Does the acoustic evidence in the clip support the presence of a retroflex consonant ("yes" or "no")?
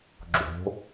no